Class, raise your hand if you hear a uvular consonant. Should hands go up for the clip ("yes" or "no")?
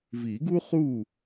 yes